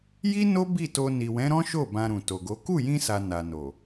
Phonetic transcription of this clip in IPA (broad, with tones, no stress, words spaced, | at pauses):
ji˦no˦ bi˦˨to˧ ni˨wɛ̃˨˦ ɾɔ̃˦ʃo˦˨ bã˧ɾũ˨to˨ɡo˨˦ ku˦˨jĩ˧sa˨ na˨no˨